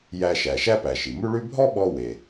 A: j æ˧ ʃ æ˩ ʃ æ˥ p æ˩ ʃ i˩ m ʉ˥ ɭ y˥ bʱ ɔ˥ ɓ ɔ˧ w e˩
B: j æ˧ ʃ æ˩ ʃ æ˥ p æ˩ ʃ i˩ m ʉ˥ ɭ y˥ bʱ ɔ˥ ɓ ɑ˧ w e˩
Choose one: A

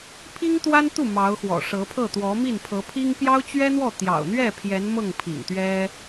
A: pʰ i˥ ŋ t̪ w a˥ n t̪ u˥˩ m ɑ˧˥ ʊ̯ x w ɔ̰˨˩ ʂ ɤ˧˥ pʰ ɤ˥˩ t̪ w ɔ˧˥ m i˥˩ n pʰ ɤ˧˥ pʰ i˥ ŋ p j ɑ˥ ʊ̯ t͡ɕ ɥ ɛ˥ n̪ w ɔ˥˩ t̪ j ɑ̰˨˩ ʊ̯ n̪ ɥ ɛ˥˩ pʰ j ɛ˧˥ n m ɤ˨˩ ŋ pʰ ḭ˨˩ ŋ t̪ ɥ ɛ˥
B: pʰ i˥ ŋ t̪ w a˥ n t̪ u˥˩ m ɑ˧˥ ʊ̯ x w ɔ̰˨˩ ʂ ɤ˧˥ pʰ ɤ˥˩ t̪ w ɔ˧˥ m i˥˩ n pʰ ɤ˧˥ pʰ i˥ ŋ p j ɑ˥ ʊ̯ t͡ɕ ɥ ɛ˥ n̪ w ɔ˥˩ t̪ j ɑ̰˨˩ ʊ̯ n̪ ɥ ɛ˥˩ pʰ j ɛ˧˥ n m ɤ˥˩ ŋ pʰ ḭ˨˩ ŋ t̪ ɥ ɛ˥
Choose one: B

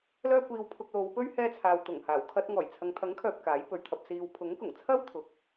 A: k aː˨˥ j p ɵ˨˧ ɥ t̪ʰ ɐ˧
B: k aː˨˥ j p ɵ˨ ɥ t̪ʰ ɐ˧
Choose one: A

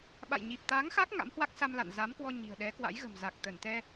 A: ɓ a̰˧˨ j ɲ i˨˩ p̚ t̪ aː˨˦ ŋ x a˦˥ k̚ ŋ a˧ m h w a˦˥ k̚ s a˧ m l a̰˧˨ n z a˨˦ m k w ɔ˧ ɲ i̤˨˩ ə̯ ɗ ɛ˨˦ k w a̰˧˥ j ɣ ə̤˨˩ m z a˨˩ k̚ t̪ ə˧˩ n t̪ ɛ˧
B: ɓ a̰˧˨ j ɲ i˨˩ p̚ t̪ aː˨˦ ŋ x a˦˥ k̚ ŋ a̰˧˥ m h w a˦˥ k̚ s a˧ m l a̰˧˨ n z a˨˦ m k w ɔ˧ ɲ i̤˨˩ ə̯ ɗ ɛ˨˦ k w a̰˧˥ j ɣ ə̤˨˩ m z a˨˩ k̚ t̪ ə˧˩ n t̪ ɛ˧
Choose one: B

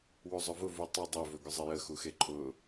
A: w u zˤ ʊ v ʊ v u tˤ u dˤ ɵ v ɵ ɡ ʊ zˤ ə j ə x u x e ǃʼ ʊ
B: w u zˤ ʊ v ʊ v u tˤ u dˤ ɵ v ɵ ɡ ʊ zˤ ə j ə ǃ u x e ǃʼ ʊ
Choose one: A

